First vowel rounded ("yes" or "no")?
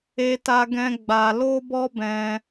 no